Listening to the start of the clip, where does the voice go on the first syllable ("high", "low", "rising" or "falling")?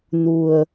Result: low